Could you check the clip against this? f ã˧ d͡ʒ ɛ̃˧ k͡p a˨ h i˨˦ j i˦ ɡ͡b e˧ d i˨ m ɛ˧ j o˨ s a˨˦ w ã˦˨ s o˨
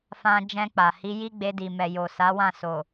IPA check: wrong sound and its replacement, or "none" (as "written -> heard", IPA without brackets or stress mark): ɛ˧ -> ɛ˨